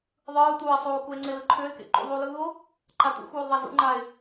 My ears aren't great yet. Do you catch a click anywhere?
yes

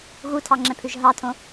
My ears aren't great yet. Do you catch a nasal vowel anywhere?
yes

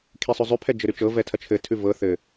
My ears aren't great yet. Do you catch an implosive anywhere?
no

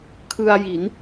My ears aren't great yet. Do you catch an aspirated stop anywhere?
yes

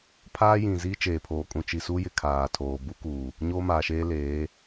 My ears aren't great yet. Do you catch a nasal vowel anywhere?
yes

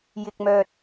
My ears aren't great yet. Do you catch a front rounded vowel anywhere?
yes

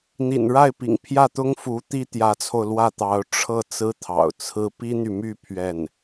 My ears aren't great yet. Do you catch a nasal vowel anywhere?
no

